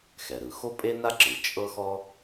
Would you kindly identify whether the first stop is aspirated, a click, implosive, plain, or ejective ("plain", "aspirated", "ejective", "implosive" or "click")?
ejective